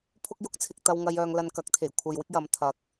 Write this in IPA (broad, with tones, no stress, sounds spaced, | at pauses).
pʰ ʊ˥ k̚ j ʊ˥ k̚ t͡sʰ ɪ˧ k̚ t̪ ɐ˧ w ŋ ɐ˧ j œː˧ ŋ l ɐ˧ n k ɐ˨˥ k̚ t̪ʰ e˨˩ j kʷʰ ɐ˨ j w ɪ˥ k̚ j ɐ˨˧ m t̪ʰ ɐ˨˥ k̚